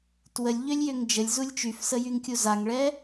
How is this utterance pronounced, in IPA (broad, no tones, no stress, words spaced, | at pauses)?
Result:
twəlʲʎølʲjøŋ d͡ʒəlʲzulʲ t͡ʃyfsəjyŋkʲu zaŋɭɛ